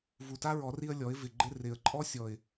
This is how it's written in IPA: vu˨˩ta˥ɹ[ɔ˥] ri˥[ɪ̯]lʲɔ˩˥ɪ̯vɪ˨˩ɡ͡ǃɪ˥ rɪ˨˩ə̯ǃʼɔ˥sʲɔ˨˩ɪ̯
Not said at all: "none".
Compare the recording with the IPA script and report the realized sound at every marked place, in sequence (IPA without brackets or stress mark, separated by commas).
ɔ˨˩˦, ə̯